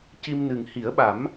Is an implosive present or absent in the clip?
present